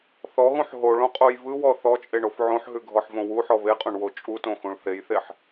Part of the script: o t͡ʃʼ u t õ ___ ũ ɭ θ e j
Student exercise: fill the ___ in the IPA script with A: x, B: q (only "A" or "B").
A